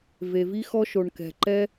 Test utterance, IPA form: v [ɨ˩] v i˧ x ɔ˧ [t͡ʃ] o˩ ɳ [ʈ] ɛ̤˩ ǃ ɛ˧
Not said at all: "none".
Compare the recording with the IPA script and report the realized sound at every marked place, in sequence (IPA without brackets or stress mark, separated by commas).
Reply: e˩, ʃ, k